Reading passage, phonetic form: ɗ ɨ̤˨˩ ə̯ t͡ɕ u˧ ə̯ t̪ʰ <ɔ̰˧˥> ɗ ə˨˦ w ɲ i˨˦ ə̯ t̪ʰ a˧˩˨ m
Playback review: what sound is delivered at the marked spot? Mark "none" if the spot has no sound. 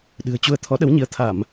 ɔ˨˦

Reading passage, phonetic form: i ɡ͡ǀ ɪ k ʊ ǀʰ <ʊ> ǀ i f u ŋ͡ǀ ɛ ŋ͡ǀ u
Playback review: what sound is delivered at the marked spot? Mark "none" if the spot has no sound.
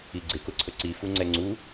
ə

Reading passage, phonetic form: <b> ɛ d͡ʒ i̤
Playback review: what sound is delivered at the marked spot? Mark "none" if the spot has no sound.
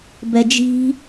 b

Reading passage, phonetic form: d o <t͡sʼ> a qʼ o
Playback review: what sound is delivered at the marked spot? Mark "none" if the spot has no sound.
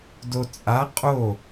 t͡sʼ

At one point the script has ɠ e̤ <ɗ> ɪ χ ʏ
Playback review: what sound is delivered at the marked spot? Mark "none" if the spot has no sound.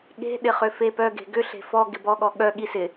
ɗ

